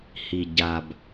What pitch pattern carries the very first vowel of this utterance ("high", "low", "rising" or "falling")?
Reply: low